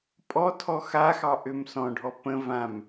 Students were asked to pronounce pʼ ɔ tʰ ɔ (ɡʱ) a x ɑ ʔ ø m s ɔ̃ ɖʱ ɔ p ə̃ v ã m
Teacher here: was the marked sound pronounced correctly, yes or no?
no